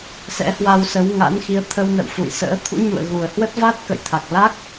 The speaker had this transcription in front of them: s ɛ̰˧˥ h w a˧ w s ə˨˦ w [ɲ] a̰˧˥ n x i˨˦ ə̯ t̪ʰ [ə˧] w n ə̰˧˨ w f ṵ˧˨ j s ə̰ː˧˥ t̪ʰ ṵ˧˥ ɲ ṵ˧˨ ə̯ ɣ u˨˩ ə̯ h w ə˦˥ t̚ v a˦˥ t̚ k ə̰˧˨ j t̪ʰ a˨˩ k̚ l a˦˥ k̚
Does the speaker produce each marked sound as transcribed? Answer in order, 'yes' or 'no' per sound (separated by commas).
no, yes